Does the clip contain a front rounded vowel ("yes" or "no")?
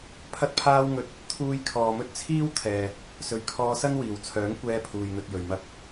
yes